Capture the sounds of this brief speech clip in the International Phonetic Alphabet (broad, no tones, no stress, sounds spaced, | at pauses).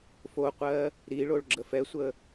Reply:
f o qʷ ɜ | ɾ i ɭ o ɭ ɡ͡ǁ ə f ɛ sʷ ə